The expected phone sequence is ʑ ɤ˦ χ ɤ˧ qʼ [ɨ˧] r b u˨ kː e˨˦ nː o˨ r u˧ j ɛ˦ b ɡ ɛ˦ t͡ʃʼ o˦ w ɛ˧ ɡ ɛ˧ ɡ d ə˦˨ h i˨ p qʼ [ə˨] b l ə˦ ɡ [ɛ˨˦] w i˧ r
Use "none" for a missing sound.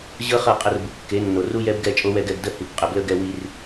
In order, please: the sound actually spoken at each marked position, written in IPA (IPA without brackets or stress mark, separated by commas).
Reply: ə˧, ə˨, ɛ˧